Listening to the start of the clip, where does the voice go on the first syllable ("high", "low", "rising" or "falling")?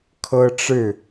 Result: high